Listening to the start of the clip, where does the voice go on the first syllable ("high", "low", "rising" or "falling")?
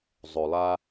low